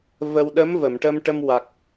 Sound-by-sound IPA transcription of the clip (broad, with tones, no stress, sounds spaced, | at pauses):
v ə˧ w ɗ ə˧˥ m v ə˨˩˨ m ʈ ə˧ m ʈ ə˧ m w a˨˩ k̚